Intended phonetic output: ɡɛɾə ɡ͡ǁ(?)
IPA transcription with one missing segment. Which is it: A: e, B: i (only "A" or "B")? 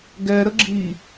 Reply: B